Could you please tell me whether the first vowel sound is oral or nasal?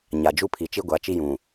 oral